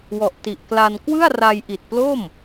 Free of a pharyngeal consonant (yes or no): yes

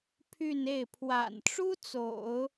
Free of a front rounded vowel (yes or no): no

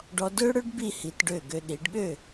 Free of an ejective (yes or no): yes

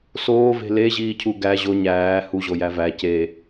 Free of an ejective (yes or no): yes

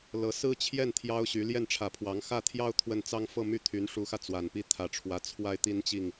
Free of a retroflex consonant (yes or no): no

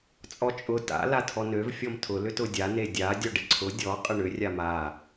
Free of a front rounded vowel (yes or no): no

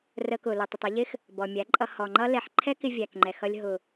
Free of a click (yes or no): no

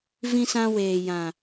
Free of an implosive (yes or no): yes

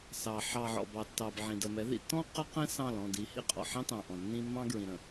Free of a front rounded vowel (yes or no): yes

